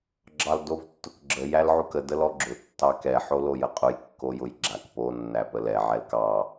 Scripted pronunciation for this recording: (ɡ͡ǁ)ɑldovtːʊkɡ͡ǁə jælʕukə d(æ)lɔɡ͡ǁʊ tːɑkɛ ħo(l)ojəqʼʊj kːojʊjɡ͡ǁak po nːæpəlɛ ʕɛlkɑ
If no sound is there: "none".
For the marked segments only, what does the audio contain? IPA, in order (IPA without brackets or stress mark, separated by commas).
ɡ͡ǁ, ə, l